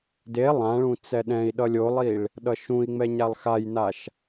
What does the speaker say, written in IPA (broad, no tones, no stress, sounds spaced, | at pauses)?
d e lˠ ã ɭ ũ t͡s ɛ ɗ ɛ̃ i̯ ɗ ʌ lʲ o lˠ i ɭ | ɗ ʌ ʃ ũ i̯ ŋ͡m ɛ ɲ a lˠ x a j n a ʃ